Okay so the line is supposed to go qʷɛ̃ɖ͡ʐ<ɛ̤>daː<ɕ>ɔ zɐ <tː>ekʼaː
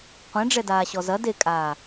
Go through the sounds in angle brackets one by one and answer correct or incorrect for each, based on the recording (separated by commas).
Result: incorrect, correct, incorrect